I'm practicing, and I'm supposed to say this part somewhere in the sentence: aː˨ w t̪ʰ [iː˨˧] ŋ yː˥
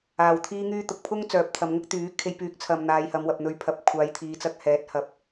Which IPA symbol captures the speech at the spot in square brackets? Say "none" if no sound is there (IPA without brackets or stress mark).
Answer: iː˥